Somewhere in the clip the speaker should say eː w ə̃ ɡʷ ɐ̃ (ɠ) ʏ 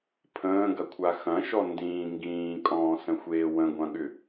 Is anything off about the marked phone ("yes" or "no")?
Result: no